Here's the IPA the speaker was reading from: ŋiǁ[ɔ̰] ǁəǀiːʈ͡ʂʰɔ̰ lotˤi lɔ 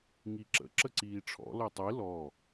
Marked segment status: incorrect: ə̰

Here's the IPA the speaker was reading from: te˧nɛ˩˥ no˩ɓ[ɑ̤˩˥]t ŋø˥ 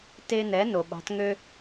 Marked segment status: correct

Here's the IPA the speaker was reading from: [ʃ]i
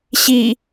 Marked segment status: incorrect: ɕ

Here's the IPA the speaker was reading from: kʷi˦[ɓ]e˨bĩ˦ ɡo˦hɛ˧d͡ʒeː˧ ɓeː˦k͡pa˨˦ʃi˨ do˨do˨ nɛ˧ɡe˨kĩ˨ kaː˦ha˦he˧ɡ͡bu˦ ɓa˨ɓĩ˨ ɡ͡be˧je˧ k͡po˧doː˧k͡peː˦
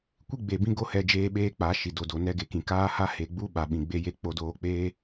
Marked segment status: incorrect: ɡ͡b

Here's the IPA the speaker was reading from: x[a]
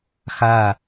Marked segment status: correct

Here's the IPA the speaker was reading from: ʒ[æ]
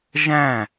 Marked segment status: incorrect: æ̃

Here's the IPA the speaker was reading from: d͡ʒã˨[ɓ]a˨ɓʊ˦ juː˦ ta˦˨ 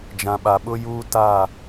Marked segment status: correct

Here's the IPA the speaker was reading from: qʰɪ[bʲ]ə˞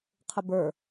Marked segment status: incorrect: b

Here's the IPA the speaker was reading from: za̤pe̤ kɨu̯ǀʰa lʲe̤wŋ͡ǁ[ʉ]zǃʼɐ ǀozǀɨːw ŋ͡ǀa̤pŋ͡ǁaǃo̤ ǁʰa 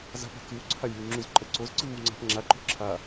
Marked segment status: correct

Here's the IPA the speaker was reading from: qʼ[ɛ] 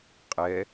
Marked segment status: correct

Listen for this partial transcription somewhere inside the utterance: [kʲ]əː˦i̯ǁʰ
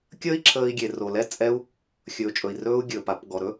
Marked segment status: correct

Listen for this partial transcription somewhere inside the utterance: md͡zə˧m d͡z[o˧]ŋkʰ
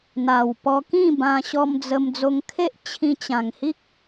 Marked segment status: correct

